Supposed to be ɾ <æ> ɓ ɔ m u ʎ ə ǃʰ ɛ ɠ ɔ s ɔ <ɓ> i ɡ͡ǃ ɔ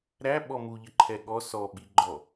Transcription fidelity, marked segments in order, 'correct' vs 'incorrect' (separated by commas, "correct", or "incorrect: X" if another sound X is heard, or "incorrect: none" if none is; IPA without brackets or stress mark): correct, correct